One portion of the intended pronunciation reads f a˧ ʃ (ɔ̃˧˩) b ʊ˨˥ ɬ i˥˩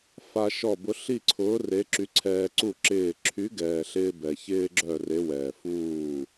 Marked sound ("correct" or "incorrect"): incorrect